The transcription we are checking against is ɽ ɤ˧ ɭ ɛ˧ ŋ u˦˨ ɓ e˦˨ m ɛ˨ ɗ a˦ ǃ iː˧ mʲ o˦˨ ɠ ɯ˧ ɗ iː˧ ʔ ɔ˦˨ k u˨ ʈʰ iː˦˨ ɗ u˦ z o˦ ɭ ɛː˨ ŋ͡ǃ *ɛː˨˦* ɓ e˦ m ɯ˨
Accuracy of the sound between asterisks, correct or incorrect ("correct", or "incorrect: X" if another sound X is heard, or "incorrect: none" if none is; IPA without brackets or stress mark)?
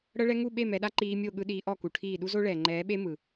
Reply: correct